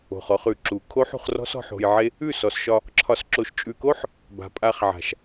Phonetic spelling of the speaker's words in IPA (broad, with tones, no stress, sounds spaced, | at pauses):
o̤˨ χ ɔ˧ χ ʉ˨ ǁ u˨ kʰ o˦ ħ ṳ˧ χ r ɔ̤˦ s ɔ̤˧ ħ o̤˧ j ʕ e˦ | ʉ˦˨ s ɔ˨ s ʃ ɒ˧ | ǁʰ ɒ˨ s ǁ o˨ ʃ t͡ʃʼ ʉ˨ k o˦ ħ | b a̤˨ pʼ a˧ χ ʕ a̤˨ ʃ